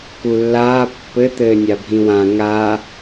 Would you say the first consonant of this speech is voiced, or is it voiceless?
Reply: voiceless